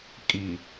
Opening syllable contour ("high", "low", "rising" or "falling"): low